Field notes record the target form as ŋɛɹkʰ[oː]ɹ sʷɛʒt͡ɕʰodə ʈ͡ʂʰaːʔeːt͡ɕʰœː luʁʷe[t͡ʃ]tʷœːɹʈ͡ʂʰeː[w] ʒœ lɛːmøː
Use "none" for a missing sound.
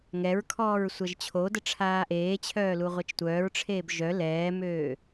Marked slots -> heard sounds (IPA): ɔː, t͡ʃ, b

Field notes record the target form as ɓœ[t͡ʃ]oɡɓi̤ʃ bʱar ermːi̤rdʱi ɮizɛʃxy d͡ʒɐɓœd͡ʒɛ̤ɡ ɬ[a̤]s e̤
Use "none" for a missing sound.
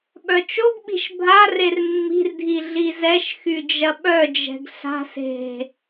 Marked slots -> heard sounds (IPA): t͡ʃ, a̤

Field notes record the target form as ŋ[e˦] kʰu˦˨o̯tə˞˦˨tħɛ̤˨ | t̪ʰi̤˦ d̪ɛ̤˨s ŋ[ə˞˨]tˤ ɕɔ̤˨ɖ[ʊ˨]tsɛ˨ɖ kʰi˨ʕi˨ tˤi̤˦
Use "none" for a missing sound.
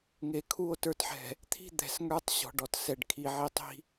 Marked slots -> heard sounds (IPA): e˨, ə˞˦, ɔ˨

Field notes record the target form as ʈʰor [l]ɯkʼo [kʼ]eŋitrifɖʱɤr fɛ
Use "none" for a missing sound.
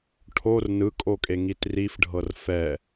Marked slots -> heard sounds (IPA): n, kʼ

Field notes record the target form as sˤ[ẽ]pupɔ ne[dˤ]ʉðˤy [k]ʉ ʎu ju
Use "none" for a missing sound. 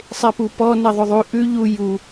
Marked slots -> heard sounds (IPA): e, ðˤ, ʔ

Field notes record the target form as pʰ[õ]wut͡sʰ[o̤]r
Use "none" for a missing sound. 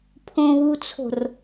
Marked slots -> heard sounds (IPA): õ, o̤

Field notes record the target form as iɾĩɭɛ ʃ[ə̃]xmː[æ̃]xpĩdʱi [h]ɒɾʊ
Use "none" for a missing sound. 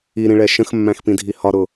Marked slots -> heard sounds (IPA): ə̃, æ̃, h

